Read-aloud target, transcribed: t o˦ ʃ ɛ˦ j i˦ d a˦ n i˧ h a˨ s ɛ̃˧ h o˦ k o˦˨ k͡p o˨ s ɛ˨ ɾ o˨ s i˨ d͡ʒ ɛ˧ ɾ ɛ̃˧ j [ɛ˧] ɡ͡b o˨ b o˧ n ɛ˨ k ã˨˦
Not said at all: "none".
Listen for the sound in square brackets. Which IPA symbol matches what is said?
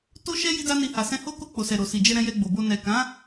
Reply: ɛ˧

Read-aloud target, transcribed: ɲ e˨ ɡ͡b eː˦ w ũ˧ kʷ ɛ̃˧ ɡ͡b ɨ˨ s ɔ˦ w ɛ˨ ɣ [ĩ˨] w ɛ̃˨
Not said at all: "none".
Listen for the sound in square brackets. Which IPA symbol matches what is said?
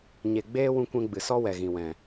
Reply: ĩ˨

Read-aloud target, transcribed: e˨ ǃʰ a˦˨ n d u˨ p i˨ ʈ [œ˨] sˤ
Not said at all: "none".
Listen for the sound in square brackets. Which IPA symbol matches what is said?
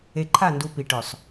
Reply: œ˨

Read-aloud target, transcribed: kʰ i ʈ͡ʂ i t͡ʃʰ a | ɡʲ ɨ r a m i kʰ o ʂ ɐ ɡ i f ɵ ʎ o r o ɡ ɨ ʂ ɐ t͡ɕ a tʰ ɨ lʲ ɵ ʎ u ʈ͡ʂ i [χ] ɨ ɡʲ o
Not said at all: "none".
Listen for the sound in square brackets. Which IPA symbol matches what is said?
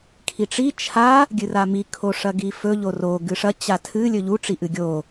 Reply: ʔ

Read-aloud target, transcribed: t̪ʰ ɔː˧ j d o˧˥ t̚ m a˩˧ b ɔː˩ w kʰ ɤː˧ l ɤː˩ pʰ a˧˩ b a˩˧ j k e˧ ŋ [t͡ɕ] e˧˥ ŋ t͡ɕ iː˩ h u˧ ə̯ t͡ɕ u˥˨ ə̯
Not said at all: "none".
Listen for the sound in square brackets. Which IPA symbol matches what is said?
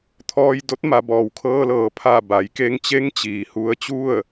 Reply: t͡ɕ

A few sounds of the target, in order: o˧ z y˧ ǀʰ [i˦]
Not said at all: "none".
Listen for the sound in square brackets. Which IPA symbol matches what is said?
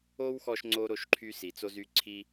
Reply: i˦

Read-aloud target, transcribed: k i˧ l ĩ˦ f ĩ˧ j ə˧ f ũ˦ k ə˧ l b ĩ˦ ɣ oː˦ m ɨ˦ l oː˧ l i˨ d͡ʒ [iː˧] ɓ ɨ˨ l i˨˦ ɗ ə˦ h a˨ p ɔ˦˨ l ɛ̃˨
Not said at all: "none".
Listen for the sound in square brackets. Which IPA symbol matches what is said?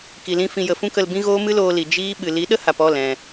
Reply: iː˦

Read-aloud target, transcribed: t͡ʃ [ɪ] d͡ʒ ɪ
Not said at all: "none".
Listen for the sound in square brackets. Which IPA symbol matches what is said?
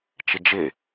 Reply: ɪ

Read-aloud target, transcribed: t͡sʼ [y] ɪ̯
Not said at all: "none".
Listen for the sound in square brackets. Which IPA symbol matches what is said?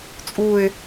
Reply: u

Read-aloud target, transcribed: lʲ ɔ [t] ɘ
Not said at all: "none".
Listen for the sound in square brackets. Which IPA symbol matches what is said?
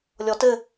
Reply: t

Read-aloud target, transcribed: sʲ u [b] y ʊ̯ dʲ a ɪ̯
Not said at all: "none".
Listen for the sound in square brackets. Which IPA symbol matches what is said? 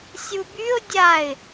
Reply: b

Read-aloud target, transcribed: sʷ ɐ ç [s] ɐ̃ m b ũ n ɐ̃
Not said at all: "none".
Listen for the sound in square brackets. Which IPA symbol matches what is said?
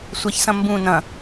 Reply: s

